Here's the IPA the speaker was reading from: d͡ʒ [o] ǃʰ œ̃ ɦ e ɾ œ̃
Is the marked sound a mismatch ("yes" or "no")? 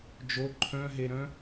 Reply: no